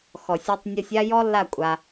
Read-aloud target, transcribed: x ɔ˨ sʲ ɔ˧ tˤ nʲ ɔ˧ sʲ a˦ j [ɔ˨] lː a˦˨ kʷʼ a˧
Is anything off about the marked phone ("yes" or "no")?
yes